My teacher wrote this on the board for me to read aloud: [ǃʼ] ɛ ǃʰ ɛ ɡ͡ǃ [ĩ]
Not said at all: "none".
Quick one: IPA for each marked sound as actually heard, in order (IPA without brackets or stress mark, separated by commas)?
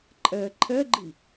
ǃʼ, i